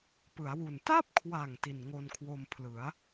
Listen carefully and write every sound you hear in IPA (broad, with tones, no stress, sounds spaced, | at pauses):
p ɯ˩˦ a̯ w u˨˩ n t a˥˩ p̚ kʰ w a˨˩ ŋ t i˨˩ n ŋ o˧ n kʰ w o˧ m pʰ l ɯ˩˦ a̯